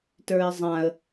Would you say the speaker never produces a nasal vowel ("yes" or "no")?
no